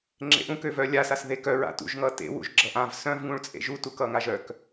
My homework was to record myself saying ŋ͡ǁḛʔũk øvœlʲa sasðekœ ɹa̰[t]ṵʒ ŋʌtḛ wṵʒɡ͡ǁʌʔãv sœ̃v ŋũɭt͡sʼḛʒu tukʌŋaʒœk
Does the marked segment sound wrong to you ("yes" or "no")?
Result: no